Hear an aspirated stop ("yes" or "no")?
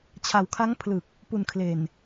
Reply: yes